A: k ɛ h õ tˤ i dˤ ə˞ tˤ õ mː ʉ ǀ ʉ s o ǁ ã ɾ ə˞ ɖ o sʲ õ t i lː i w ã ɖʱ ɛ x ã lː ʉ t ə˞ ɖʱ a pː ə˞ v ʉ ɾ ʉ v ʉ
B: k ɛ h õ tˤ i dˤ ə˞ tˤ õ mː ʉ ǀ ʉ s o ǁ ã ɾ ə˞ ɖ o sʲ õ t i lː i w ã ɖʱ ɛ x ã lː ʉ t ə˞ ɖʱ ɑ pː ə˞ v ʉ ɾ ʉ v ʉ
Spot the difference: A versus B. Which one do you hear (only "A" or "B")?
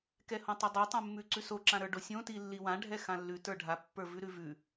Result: A